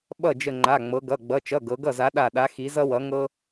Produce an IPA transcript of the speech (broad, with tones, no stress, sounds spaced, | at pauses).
ɓ ʌ˥˩ d͡ʒ ə˧˩ ŋ͡ǃ a˩˧˩ ŋ͡m ɤ˩˧ ɡ ʌ˩˧˩ ɡ͡b ʌ˩˧˩ t͡ʃ ʌ˩˧˩ ɡ ɤ˩˧ ɡ ʌ˥˩ z a˨˥ ɗ a˧˩ ɗ a˨˥ x i˨˥ z ʌ˥ w ʌ˨˥ ŋ ɤ˥